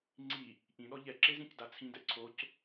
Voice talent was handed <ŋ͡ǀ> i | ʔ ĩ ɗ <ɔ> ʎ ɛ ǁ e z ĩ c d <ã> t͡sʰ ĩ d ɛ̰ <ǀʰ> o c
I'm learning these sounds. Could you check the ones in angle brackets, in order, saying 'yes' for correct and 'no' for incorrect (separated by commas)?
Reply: yes, yes, no, yes